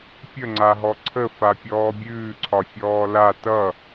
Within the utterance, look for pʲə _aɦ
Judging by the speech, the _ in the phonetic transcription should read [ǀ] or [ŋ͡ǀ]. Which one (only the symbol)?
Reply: ŋ͡ǀ